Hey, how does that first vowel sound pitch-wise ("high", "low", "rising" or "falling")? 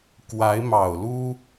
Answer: rising